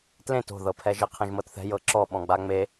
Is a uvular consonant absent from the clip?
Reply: no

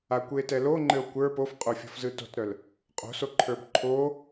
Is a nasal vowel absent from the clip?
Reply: yes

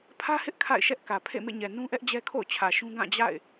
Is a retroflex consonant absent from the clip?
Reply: yes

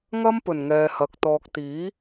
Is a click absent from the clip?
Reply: yes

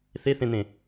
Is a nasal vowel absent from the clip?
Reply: no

